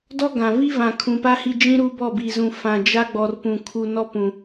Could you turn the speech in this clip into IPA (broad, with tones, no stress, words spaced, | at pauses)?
dɔ˦ɡã˨ vi˦vã˨ kʰũ˨pa˦ hi˦d͡ʒĩ˦ɾu˦ bɔ˦˨bi˨zũ˨ fã˨d͡ʒa˦ɡ͡bɔ˨r pũ˨ kʰu˨nɔ˦pũ˨